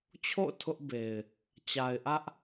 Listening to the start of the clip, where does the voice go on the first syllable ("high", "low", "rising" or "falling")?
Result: falling